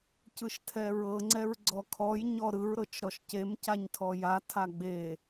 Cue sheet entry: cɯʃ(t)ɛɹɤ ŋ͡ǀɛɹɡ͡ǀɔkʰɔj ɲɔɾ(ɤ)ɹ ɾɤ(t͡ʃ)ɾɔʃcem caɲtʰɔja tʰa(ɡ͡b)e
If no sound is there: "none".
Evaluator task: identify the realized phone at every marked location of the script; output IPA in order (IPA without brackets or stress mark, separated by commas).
tʰ, ɯ, t͡ʃ, ɡ͡b